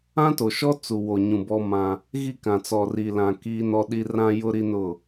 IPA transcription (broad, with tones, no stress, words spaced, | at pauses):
ã˦to˨ʃɔ˦ t͡su˨wo˨ɲũ˨ bɔ˦mã˦ | ɣi˦˨kã˨t͡sɔ˨ ri˨lã˨ ki˦nɔ˦ɗi˦ rã˦jʊ˦ɾi˦nʊ˦˨